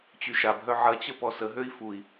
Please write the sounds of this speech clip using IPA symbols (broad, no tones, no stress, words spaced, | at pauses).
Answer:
t͡ɕyʃabɦœ ʕɐt͡ɕə pɔsəɦøi̯ fui̯